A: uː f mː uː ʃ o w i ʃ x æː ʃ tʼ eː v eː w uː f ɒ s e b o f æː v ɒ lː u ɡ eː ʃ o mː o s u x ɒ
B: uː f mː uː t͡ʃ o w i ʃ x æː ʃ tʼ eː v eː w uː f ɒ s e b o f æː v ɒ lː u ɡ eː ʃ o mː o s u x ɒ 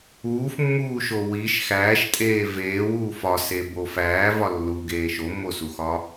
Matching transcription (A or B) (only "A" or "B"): A